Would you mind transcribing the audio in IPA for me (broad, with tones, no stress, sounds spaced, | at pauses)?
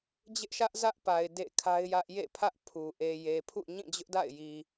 d͡ʑ ɪ˦ ʔ ʃ ä˦ ʔ z ä˦ ʔ p a˨ ɪ̯ d ḛ˦˨ kʰ a˦ ɪ̯ j ä˦ ʔ j ḛ˦˨ pʰ ä˦ ʔ pʰ u˨ ʔ e˨ j e˨ pʰ ṵ˦˨ ɲ ĩ˦˨ d͡ʑ ʊ˦ ʔ d a̰˦˨ ɪ̯ j i˨